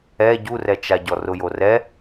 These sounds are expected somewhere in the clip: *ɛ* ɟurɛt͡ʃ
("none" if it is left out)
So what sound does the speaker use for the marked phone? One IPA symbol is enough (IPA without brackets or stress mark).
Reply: ɛ